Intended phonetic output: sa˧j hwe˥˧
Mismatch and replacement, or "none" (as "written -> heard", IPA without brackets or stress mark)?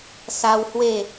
j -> w